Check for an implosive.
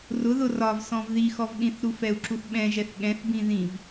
present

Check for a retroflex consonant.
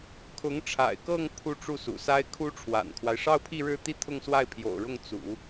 present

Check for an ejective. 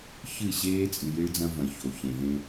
present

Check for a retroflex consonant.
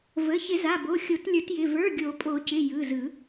absent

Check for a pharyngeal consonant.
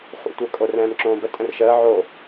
present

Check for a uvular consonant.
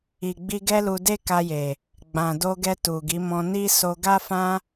absent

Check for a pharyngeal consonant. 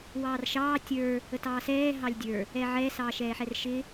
present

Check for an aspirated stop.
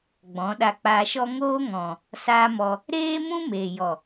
absent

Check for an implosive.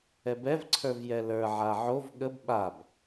present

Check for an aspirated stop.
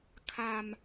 present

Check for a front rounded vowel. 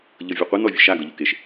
absent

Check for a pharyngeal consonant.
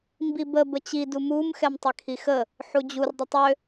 present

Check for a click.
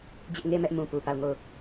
absent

